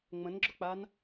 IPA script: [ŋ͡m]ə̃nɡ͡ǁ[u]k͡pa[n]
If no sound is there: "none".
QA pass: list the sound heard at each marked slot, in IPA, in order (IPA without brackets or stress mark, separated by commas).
ŋ͡m, ʊ, n